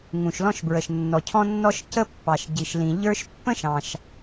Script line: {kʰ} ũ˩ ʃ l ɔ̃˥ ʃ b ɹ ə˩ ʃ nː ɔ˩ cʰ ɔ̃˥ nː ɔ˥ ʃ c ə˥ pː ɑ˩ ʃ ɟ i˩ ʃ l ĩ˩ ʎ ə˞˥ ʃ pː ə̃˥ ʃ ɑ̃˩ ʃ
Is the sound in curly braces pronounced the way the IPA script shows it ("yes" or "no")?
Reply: no